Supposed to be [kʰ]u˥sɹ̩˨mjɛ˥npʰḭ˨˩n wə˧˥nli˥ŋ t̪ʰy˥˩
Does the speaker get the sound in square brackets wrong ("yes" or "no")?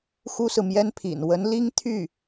yes